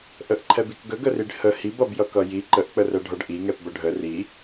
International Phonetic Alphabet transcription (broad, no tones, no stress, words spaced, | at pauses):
ʔəʔǃʰɛbik ɡəɡəriɖ hə hibʌbjʌkʌ ji ǃəʔk͡pərɛɖʱʌɖ ʔiŋɛpbə ɖʱə ri